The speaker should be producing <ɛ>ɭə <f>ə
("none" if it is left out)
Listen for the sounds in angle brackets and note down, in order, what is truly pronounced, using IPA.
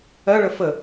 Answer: ɜ, f

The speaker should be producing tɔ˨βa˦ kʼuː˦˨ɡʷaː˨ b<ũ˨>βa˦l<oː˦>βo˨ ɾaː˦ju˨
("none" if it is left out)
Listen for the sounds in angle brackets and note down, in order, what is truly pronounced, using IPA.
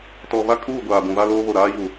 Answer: ũ˨, oː˦

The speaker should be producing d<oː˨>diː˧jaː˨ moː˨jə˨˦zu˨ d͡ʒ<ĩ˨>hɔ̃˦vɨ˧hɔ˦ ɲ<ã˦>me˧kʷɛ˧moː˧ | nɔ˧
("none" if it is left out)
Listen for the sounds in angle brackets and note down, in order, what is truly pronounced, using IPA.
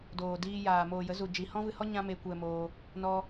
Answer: oː˨, i˨, ã˦

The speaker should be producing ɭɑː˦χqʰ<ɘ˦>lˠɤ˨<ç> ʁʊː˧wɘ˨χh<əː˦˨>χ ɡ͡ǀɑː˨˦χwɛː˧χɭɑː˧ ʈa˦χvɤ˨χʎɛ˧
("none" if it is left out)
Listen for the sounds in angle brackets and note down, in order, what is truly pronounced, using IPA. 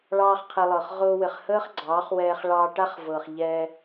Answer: ɘ˧, χ, əː˦

